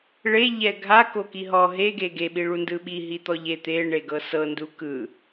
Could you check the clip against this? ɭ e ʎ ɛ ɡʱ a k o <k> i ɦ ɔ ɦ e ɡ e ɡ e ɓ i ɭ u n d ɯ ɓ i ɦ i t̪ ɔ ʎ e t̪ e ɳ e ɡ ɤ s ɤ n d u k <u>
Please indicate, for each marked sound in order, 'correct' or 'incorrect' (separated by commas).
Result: correct, incorrect